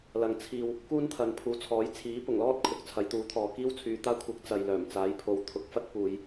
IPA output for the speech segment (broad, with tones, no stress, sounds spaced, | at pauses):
l ɐ˨ ŋ t͡sʰ iː˧ w | k uː˥ n t̪ʰ ɐ˨˧ n pʰ uː˨ t͡sʰ ɔː˨˥ j t͡sʰ iː˨˥ p ʊ˨˩ ŋ l ɔː˥ t̚ kʰ ʊ˧ k̚ t͡sʰ ɐ˨˥ j t̪ uː˨˥ t̪ʰ ɔː˨ k iː˥ w t͡sʰ yː˨ t̪ aː˥ kʷʰ ɪ˨˥ k̚ t͡s ɐ˨ j l œː˨˩ m t͡s aː˨˥ j pʰ o˨˧ w t̪ʰ ʊ˨ k̚ f ɐ˥ t̚ p uː˨˧ j